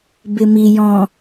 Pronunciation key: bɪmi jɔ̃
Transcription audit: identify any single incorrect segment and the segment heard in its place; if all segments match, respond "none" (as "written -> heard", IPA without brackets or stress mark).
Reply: none